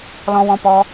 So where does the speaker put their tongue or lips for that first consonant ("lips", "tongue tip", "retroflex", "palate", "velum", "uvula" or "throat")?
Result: tongue tip